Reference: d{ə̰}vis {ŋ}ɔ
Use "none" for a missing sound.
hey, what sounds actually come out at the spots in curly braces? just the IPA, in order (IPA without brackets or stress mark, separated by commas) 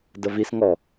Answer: ə, ŋ